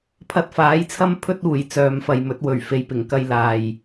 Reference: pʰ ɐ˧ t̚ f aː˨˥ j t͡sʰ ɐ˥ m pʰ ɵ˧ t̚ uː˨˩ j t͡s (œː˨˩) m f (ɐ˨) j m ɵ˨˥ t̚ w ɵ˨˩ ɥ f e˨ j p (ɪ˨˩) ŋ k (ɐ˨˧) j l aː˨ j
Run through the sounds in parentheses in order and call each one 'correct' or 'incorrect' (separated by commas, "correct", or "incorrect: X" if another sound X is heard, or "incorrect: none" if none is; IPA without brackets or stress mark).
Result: incorrect: œː˨, correct, correct, incorrect: ɐ˧